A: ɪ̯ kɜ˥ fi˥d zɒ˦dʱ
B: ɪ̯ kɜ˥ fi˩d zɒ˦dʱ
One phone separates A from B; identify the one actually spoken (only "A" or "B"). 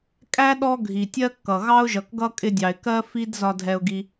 A